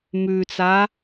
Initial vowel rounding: rounded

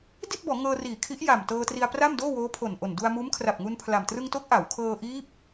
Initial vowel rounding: unrounded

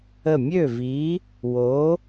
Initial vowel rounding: unrounded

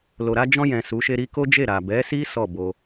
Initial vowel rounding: rounded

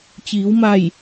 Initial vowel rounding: unrounded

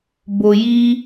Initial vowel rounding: rounded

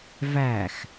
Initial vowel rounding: unrounded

